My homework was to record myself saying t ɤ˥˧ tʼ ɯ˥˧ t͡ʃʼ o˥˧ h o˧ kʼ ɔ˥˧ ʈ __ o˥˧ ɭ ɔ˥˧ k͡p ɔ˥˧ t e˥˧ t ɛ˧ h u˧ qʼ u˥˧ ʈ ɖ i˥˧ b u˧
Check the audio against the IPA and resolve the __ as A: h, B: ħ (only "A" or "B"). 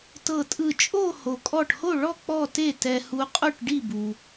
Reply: A